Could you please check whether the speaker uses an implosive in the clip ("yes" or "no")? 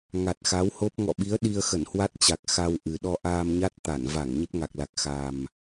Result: yes